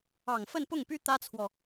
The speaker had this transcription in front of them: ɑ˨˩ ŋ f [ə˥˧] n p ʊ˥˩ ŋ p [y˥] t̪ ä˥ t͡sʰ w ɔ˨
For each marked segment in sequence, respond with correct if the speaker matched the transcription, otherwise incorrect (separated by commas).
correct, correct